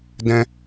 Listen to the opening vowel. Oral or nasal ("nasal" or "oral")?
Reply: nasal